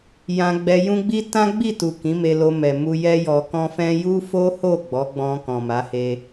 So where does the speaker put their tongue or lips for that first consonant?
palate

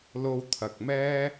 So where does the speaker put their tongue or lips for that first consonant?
tongue tip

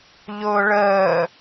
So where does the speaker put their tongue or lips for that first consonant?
palate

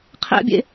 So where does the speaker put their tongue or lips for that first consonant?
uvula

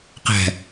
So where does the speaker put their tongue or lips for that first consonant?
uvula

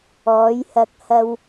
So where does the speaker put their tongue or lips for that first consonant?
palate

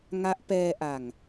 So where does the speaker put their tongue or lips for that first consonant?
velum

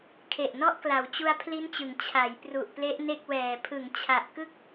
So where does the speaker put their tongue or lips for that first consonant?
velum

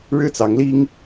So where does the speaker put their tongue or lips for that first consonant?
retroflex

